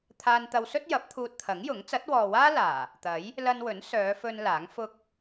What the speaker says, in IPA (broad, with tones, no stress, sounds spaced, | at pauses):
t̪ʰ aː˧ n t̪ ɐ˧ w s ɵ˥ t̚ j ɐ˨˥ p̚ t̪ʰ uː˧ t̚ t̪ʰ ɐ˨˥ ŋ j ʊ˨˥ ŋ t͡s ɐ˨˥ t̚ w ɔː˨ w aː˥ l aː˨˩ | t̪ ɐ˨˥ j | l ɐ˧ n w ɵ˨˥ n s œː˨˧ f ɵ˧ n l aː˨˥ ŋ f ʊ˥ k̚